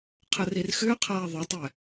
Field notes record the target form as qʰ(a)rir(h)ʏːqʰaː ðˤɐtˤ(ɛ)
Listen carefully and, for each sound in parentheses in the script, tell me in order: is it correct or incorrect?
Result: incorrect: ə, incorrect: x, correct

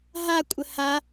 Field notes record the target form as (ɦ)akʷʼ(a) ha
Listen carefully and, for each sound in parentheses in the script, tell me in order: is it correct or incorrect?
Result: correct, incorrect: ə

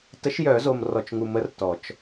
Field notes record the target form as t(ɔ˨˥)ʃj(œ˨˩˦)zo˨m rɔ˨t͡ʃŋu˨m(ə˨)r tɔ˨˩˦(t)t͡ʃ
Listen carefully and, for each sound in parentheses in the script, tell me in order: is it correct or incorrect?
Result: incorrect: ə˨˥, correct, incorrect: ə˨˥, incorrect: none

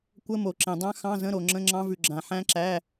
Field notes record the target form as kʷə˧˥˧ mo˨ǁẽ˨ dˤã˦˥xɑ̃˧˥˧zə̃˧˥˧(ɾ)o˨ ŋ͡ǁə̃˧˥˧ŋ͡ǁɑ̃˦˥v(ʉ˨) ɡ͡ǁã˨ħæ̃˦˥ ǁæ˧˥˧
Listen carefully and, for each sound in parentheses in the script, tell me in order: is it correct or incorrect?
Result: correct, correct

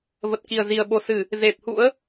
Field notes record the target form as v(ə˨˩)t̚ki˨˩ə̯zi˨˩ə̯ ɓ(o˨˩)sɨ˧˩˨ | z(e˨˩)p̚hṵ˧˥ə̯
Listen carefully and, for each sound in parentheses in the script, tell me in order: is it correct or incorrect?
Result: correct, correct, correct

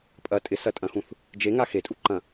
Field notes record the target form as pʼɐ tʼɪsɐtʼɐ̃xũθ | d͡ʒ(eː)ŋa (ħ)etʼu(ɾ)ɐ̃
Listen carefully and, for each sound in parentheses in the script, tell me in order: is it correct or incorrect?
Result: incorrect: e, incorrect: x, incorrect: ǃ

